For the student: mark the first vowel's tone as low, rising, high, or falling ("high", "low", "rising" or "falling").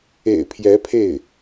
low